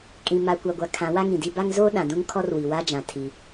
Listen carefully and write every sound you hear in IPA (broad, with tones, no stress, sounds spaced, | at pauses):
kʼ ĩ˨ m a˨ kʷ a˨ ɡʷ a˨ kʰ ã˨˦ w a˦ ŋ ĩ˨ d i˦ b a˦ ŋ z oː˦ ɗ ã˨ d ũ˦ ŋ kʰ ɔ˦ r w i˨ w a˦ d͡ʒ ã˨ tʰ i˦